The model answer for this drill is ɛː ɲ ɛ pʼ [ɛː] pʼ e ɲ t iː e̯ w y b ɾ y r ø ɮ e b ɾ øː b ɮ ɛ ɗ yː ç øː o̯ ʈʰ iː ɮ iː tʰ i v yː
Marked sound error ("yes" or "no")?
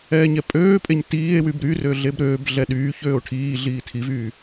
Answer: yes